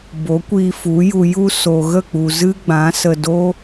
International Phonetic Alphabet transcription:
b o˨˦ kʷ i˧ f u˨˦ j u˨ j u˧ s o˨ ɣ ə˦˨ k͡p u˨ z ɨ˦ ɡ͡b ã˨˦ s ə˧ d o˦

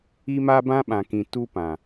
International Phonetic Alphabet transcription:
i˦ m a˦ b ã˦ ɓ ã˨ k ĩ˨ t u˦ p ã˨

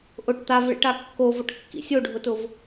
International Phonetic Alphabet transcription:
ʔ ʊ ʈ t̪ a v ɭ ḭ ʈ a kː o v ʊ ʈ kː ḭ sʲ o ɖʱ ʊ t ʊ v

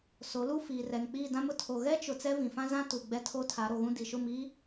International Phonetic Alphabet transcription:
s o˨˦ l u˦ f iː˨ r ɛ˨ ŋ k͡p iː˦˨ d ã˦ m ʊ˦ tʰ o˨ ɣ ɛ˦ t͡ʃ ʊ˨ t͡s ɛ˦ v ĩ˨ f ã˦ z ã˦ t u˨ ɡ͡b ɛ˦ tʰ o˦ tʰ a˨˦ ɾ o˨ ɣ ũ˦ d i˨ ʃ ʊ˦˨ m i˦

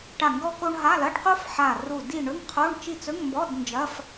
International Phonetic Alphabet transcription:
ʈ a˦˨ ŋ ɡ ɔ˥ k o˥ ɳ ɦ a˧˥˧ l ɐ˧˥˧ ɖ q o˥ f ħ a˦˨ r u˦˨ d i˦˨ ɳ ɵ˧˥˧ ŋ qʰ o˧˥˧ ɳ t͡ʃ i˦˨ t͡s ɵ˧˥˧ ŋ m b ɔ˧˥˧ d n d͡ʒ ɐ˧˥˧ f

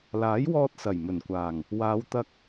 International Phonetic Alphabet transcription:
l aː˨˥ j w ɔː˥ t̚ s ɐ˨˩ j m ɵ˨˩ n kʷ aː˨˩ ŋ | w aː˨˧ w t̪ ɐ˧ k̚

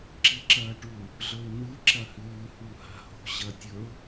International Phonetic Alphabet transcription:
ǁ i ǁ ɐː ʈ u | ɮ ɵ ɪ̯ n̪ ɨ ǁ ɐ h ʉː h u h a̤ h o̤ ɕ ɐ tʲ ɵ ʊ̯

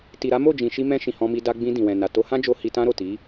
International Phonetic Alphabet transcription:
t i˨ ɾ a˨˦ m o˦˨ d͡ʒ ĩ˨ ʃ i˧ m ɛ̃˧ ʃ ĩ˨ h ɔ̃˧ m i˧ d a˧ ɡ͡b ĩ˧ d ĩ˨ w ɛ̃˨ n a˨ t o˧ h ã˦ d͡ʒ o˧ h i˧ t ã˦ ɾ o˦˨ t i˨˦

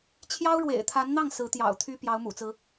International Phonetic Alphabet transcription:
t͡ɕʰ j ɑ˥ ʊ̯ ɻ w ḛ˨˩ ɪ̯ t̪ʰ a˧˥ n n̪ ɑ˥˩ ŋ s ɹ̩˧˥ t̪ j ɑ̰˨˩ ʊ̯ t̪ʰ y˥ p j ɑ˧˥ ʊ̯ m ṵ˨˩ t͡s ɹ̩˦

